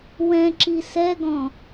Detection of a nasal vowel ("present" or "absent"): present